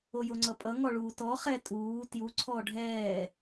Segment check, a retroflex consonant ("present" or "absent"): present